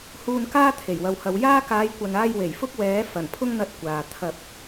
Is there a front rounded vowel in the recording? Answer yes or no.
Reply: no